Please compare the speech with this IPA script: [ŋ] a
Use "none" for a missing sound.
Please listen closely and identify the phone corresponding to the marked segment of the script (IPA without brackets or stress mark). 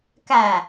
k